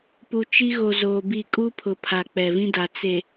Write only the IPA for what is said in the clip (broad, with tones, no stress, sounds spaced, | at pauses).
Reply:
p u˨ t͡ʃ i˦ ɣ o˨ z oː˨ b i˦˨ kʼ u˦ pʰ ʊ˨ pʰ a˨ k͡p ɛ˨ v ĩ˦ d a˨ t͡s e˨